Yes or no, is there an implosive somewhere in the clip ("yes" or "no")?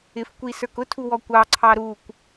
no